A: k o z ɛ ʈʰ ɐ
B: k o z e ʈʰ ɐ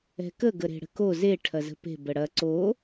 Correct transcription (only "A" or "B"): B